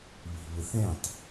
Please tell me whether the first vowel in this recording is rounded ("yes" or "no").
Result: no